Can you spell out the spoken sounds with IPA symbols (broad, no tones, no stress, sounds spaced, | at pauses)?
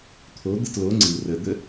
t̪ʰ o d̪ ə t l o ŋ͡ǀ ɯ r ə d̪ ə